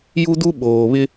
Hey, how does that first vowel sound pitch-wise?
high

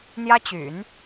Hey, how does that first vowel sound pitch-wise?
high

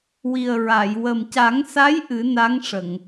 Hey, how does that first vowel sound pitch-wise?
low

